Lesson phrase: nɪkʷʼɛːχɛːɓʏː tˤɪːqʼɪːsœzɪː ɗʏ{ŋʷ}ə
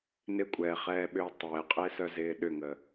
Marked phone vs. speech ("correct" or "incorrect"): incorrect